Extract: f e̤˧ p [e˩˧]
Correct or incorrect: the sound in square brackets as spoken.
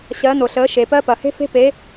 correct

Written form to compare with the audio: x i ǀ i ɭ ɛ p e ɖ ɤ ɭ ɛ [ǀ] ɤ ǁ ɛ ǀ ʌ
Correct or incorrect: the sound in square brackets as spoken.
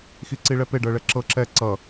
incorrect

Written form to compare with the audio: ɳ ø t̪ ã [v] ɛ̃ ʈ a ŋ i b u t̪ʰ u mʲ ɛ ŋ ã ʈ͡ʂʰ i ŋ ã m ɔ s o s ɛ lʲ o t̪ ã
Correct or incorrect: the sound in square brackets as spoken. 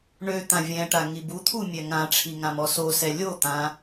incorrect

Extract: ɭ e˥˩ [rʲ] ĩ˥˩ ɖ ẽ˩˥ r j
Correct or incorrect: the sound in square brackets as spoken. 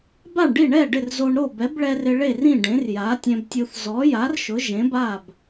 incorrect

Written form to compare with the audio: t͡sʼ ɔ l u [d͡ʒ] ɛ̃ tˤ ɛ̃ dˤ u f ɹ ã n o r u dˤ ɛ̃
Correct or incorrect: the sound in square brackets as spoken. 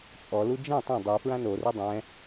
correct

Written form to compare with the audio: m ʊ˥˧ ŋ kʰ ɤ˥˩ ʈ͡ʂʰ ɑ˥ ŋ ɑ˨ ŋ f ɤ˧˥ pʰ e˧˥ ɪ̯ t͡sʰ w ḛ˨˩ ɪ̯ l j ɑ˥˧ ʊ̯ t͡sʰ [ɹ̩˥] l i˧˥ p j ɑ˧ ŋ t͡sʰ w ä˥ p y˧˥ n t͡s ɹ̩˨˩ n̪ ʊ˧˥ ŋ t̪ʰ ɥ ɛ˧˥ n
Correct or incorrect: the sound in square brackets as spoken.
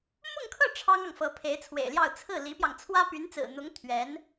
incorrect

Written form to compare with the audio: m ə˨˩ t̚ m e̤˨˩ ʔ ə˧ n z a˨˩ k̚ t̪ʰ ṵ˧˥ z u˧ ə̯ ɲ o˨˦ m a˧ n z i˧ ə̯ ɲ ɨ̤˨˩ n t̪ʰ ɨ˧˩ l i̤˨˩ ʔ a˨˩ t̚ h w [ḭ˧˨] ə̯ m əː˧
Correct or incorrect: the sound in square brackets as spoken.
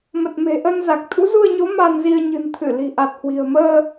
incorrect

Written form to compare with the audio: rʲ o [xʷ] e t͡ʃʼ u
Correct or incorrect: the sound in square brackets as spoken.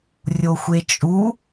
correct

